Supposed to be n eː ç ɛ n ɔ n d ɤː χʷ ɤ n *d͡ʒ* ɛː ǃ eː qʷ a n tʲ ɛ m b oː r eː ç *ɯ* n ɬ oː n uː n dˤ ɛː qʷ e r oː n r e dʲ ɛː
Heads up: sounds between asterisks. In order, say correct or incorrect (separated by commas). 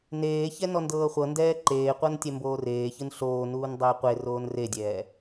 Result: incorrect, correct